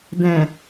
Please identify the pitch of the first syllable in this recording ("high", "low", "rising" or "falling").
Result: low